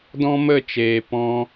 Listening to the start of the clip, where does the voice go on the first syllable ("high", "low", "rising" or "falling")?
high